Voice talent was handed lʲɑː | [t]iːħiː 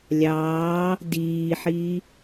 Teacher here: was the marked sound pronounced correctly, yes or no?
no